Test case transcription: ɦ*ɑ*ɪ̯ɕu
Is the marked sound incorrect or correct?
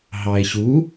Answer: correct